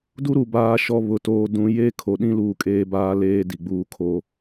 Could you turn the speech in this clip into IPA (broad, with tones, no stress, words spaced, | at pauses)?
du˦ɾu˨ baː˦ʃɔ˦ βʊ˦toː˦ dũ˦ jeː˦kʰo˨ɗĩ˦ luː˦ kʼeː˦baː˦leː˦ di˨ɡ͡buː˦kʰoː˦